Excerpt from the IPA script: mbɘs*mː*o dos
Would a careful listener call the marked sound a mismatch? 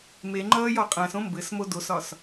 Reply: yes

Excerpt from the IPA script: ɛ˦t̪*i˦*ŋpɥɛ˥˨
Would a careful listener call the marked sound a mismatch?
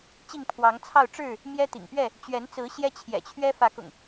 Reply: yes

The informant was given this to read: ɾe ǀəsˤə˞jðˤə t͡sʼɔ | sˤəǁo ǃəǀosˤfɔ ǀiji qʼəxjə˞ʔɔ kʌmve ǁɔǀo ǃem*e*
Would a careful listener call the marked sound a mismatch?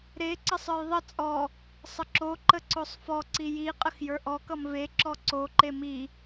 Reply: yes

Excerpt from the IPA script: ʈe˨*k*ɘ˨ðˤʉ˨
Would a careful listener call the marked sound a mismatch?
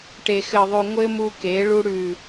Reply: yes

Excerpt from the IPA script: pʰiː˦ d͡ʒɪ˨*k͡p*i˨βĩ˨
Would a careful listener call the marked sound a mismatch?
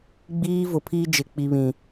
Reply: no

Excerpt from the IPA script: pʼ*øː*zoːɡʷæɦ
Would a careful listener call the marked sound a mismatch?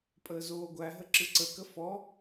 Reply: yes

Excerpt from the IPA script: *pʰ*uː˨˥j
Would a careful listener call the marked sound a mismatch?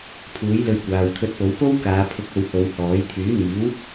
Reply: no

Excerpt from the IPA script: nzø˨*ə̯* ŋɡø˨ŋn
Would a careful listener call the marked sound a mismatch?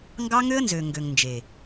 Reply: yes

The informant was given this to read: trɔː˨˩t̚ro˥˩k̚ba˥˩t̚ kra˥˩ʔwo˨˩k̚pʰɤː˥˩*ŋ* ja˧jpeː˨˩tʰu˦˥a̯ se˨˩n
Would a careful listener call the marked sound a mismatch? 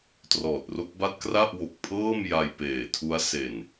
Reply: yes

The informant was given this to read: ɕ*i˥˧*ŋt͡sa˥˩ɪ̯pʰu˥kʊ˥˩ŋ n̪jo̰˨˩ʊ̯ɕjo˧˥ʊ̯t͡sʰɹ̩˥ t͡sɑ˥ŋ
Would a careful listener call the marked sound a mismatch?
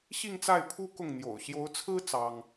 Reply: no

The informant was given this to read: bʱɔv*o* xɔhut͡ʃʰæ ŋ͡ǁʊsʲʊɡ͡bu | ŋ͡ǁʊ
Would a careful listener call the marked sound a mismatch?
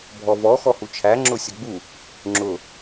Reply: yes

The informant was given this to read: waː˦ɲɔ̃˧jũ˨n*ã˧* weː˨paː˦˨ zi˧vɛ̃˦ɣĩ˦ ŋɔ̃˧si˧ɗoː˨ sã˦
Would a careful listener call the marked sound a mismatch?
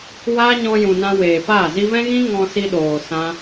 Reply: no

